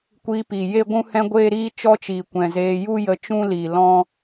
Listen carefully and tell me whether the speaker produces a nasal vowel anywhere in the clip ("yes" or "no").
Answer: yes